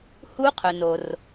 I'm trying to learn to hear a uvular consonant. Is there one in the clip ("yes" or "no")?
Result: yes